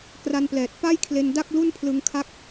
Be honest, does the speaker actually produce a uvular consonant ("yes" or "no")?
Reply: no